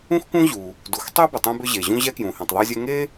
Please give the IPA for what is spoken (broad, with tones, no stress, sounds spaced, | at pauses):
ũ˥ x k ũ˥ ʑ u˩ | d u˩ x tˤ ø˥ b ʏ˩ tˤ ũ˥ b ʏ˥ ʑ e˩ ʑ ũ˥ ʑ ɛ˥ k j ũ˩ h ĩ˩ tˤ ðˤ e˥ zʲ ɛ˥ ŋ e˥